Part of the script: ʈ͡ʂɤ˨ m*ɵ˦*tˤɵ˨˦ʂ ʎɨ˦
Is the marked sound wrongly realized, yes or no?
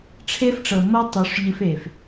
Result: yes